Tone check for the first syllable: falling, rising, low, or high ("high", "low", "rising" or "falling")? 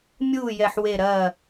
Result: falling